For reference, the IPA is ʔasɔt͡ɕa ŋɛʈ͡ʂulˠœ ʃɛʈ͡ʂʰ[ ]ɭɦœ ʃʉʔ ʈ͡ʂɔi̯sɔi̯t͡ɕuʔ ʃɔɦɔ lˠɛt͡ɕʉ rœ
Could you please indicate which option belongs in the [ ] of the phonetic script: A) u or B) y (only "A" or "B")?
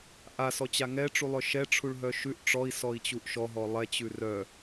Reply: A